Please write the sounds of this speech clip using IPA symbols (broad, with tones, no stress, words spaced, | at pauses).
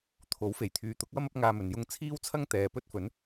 t̪ʰo˨˥wfe˨˩jt̪ʰyː˨ t̪ʊ˨˥k̚wɐ˥m ɐ˥p̚ŋaː˧mɵ˨n jʊ˧ŋt͡sʰiː˥wt͡sʰɐ˥ŋt̪ɛː˨ pɵ˥t̚fɵ˨˥n